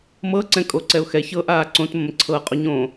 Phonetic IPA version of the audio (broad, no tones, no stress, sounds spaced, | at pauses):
m ɤ ǀ ɛ̃ kʼ o ǀ ɛ ʊ̯ x ɛ ç ɤ ʔ aː ǀ õ t m ə̃ m ǀʰ ɤ qʼ o ɲ õ